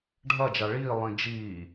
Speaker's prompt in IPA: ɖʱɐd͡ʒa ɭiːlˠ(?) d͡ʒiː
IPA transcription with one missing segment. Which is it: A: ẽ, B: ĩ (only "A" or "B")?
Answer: B